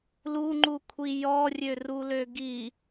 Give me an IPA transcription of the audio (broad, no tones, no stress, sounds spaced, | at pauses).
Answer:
l u ŋ͡ǃ u kʷʰ i j ɔ rʲ ø r u l ø ɡ i